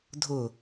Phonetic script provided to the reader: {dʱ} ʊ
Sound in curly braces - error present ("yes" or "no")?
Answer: no